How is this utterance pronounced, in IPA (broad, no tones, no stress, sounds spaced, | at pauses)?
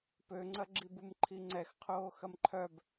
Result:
p ø ŋ͡ǀ ɐ ɡ͡ǁ i b u m ǃʰ i ŋ͡ǀ ɛ x qʰ oː x ɐ m ǃʰ œ b